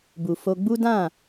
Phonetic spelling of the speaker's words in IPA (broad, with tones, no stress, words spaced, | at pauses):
bu˨fo˧ɡ͡bu˦dã˦˨